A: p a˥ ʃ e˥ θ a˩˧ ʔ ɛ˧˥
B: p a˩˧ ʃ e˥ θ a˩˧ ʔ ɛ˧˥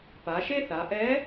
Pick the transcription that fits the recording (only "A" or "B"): B